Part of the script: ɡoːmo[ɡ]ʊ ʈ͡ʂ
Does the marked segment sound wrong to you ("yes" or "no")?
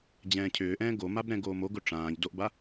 no